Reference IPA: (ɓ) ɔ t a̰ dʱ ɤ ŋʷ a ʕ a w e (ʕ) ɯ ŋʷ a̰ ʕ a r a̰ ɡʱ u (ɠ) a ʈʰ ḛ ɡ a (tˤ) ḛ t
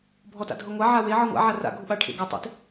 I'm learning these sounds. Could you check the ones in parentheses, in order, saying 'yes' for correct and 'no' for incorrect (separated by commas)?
no, yes, no, yes